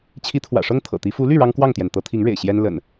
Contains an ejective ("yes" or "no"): no